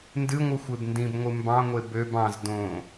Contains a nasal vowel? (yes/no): yes